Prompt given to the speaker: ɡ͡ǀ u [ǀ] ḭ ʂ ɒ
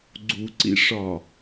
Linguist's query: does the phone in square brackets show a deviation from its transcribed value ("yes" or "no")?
no